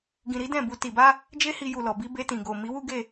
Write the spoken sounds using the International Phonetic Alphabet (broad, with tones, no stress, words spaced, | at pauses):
ɡĩ˧ɾi˦dɛ̃˦˨bu˧ ti˨ba˧ | d͡ʒe˦hi˧ju˨lɔ˨ bi˨˦ be˧tĩ˨ɡo˨ mi˨˦wu˦ɡe˦˨